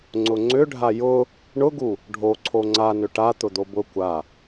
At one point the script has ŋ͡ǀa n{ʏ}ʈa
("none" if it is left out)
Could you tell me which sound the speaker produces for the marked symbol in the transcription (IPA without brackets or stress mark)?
ʏ